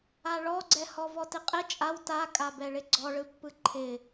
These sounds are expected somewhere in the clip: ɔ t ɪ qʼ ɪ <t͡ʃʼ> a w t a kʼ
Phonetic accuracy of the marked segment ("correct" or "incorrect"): correct